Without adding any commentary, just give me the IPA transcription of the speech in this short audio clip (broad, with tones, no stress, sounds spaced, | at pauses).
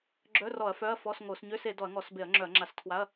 ɡ͡ǁ œ˧˥˧ r ɔ˧˩˧ ɐ̯ f œ˧˥˧ ɐ̯ f ɔ˧˥˧ s ŋ o˧˩˧ s ɲ ø˧˥˧ s e˧˩˧ d ɔ˧˩˧ ɐ̯ ŋ ɔ˧˩˧ s b e˧˩˧ ɐ̯ ŋ͡ǁ œ˧˩˧ ɐ̯ ŋ͡ǁ a˧˩˧ s tʰ w a˧˥˧ ɐ̯